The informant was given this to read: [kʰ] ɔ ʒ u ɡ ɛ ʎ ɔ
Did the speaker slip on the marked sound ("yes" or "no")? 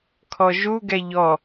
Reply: no